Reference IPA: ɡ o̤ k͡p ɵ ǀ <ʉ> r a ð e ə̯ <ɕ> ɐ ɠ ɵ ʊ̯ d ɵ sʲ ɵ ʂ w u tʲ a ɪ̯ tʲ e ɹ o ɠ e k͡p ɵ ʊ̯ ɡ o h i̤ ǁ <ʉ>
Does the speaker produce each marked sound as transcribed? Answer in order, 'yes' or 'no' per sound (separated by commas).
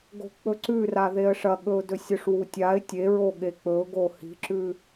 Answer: yes, no, yes